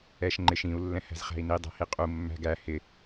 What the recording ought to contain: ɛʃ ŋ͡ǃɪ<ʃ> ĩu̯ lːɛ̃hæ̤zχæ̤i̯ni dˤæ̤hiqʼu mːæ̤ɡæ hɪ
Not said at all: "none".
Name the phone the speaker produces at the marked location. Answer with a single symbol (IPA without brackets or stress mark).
ʃ